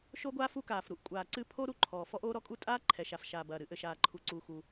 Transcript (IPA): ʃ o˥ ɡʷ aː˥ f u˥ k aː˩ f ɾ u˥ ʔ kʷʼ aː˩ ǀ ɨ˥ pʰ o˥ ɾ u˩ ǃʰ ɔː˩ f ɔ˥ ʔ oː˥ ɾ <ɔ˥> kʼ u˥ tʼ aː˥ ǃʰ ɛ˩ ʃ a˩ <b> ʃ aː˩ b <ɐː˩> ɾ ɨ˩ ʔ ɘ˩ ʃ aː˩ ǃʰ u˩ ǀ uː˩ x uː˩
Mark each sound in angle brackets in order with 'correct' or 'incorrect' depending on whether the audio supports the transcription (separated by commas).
correct, incorrect, correct